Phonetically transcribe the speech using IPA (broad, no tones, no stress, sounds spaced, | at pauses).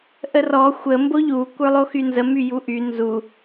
ʔ ə r ɔ xʷ ə m b o ʎ u kʷ ə˞ lˠ o x y n z ə m y j u ʔ y n z u